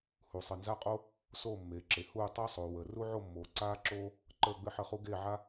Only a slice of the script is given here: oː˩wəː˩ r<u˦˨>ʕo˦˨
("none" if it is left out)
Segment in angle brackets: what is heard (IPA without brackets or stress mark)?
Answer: u˦